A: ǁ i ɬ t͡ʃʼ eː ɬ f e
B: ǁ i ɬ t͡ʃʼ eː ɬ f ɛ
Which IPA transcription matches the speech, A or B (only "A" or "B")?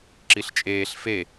A